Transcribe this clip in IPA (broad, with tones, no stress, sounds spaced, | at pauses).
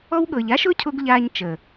ɔ˦ w ɠ ɤ˨ ʎ a˦ ʃ ʊː˦ cʰ ʊː˧ ɡ ʎ aː˧ ɲ t͡ʃ əː˨